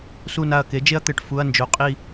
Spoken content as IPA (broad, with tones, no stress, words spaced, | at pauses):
su˧˩na˧˩ɐ̯ke˩˥ d͡ʒe˦ɐ̯t̪ɘ˩˧˩ʈ fu˩˧˩ɐ̯nd͡ʒo˨˩˦ qʼi˧˩